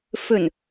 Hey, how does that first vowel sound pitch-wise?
low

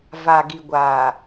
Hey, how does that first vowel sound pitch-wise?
low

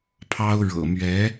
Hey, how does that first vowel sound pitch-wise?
high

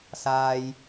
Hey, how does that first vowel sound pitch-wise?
low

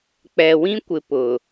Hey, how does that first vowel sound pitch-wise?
low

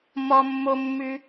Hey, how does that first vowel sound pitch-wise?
high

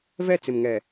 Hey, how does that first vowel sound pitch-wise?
falling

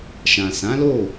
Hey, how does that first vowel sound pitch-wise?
low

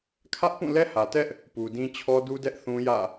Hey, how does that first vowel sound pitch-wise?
high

